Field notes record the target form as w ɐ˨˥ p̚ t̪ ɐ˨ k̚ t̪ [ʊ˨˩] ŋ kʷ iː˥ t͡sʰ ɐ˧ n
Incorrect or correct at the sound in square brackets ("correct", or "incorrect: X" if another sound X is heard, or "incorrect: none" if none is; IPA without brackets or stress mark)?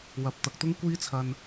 incorrect: ʊ˥